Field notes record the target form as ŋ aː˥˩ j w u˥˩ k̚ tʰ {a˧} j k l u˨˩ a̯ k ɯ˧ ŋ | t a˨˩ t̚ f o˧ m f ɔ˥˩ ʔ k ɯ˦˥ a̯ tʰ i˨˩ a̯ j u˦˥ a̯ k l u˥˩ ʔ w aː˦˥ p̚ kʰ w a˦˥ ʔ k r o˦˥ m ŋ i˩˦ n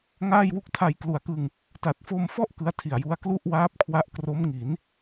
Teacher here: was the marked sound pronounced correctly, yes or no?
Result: yes